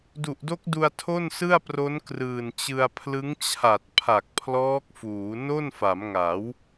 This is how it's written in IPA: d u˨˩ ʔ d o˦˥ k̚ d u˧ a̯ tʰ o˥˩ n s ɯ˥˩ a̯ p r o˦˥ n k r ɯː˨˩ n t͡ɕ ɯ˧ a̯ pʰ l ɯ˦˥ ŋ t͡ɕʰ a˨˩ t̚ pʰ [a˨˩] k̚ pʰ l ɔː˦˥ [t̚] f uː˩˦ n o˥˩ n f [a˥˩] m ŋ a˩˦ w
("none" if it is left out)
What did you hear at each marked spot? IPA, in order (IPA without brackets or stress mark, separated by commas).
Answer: a˨˩, k̚, a˩˦